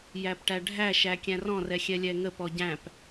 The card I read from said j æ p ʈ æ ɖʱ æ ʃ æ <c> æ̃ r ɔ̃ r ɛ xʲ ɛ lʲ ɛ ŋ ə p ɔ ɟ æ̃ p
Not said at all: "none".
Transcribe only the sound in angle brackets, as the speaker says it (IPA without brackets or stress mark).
kʲ